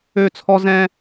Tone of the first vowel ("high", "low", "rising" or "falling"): falling